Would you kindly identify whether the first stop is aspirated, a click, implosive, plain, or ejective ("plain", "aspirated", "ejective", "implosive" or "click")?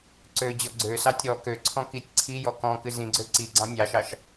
click